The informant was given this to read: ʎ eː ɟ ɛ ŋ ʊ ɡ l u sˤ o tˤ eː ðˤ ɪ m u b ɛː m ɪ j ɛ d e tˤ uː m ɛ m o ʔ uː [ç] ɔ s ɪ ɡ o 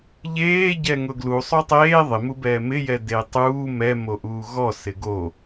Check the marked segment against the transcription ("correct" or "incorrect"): incorrect